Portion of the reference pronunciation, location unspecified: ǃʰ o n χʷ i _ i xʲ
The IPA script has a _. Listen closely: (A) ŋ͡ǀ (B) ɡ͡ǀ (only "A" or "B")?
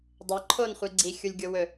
B